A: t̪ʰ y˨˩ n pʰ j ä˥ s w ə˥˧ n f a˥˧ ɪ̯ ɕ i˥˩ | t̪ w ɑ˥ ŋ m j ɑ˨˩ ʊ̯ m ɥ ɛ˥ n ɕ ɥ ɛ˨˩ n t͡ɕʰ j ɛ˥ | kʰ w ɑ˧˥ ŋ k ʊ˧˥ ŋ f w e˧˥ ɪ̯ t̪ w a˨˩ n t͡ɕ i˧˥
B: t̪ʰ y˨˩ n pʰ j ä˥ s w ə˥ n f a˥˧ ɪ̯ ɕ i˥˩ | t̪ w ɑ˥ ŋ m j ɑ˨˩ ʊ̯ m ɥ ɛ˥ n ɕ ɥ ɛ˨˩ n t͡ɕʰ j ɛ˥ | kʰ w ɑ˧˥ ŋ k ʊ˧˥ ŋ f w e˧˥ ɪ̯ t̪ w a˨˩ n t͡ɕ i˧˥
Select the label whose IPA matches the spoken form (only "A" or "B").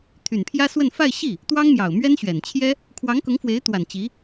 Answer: A